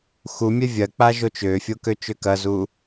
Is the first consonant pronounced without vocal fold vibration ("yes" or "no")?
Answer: yes